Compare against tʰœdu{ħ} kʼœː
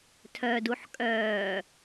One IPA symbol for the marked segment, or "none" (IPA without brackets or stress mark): ħ